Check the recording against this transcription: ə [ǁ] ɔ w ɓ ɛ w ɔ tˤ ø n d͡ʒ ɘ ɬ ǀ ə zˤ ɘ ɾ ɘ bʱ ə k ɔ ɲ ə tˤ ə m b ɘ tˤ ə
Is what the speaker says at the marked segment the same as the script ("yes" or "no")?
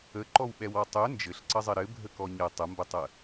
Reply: no